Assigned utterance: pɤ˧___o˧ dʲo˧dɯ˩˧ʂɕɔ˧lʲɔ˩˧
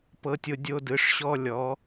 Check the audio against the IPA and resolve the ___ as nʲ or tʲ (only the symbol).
tʲ